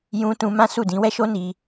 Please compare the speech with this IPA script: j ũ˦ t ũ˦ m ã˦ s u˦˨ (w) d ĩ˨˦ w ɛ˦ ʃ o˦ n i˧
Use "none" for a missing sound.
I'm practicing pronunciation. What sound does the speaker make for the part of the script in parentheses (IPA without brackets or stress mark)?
none